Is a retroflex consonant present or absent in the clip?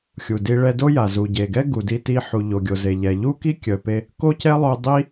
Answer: present